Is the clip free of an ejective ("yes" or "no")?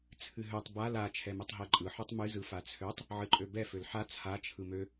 no